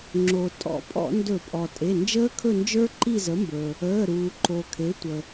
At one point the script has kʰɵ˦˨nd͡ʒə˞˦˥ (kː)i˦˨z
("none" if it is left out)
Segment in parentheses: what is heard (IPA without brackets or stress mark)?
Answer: ǃ